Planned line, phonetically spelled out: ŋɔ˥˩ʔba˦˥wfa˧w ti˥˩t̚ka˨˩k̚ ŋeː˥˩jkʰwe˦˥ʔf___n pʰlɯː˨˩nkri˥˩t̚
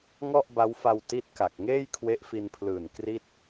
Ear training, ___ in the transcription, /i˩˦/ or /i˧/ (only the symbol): i˧